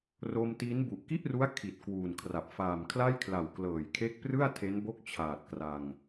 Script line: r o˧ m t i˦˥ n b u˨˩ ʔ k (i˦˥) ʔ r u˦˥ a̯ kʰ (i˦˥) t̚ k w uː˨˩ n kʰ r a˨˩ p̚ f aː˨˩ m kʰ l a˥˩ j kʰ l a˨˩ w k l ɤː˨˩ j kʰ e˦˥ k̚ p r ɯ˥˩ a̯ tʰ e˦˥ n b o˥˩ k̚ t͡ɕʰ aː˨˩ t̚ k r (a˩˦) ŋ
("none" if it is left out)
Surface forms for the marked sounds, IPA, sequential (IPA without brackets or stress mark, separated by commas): i˥˩, i˨˩, a˧